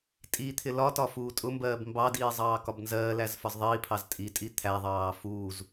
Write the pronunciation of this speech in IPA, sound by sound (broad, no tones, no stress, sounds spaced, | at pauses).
tʼ i t̪ʰ ɪ l ɒ t ɒ f uː tʼ ʊ m b ɜː b m b ɑ d iː zˤ ɑː k ɒ b n z ɜː l æ z f ɒ z ðˤ iː pʰ ɑ z tʼ i tʼ i t̪ʰ æ ðˤ ɑː f uː z